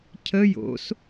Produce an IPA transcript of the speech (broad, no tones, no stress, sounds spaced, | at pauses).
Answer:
cʰ ə j o̰ s